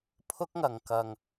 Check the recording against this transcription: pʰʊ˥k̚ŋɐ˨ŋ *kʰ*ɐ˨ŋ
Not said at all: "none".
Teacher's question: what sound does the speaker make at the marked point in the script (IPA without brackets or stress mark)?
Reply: k